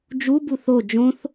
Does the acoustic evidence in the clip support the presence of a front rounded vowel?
no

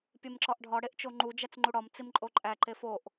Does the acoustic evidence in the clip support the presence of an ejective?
yes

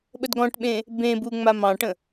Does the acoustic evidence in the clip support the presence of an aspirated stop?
no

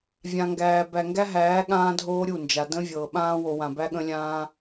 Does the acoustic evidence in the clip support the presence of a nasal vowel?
yes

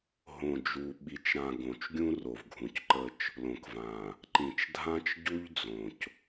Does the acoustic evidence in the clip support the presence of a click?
yes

